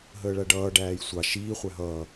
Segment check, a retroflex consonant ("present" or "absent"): present